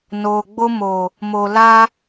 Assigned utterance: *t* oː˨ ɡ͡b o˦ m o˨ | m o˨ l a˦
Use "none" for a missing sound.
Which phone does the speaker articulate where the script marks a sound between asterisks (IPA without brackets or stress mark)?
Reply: n